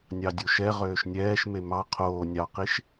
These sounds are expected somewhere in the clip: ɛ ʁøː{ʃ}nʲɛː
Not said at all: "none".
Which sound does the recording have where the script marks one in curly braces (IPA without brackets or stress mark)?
ʃ